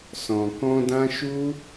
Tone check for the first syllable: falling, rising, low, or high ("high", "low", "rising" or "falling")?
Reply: low